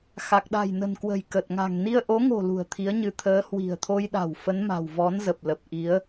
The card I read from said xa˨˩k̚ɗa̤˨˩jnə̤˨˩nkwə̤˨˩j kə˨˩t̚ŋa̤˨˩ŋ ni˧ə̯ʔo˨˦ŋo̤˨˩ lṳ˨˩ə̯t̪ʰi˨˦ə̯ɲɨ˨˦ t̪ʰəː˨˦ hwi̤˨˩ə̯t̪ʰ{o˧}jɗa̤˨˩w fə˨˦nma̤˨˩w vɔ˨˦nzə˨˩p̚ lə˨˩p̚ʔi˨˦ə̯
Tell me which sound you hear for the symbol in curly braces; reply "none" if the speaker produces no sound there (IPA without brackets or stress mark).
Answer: o˧